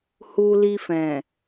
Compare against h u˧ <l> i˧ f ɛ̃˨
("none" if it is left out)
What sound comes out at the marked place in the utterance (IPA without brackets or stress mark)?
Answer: l